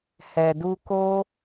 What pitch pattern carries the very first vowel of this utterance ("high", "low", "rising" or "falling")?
low